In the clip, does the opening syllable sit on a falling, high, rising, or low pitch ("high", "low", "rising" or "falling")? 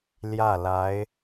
falling